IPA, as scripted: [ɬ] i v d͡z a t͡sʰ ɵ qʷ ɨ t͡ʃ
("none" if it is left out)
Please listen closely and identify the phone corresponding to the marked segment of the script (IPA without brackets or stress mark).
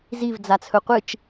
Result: z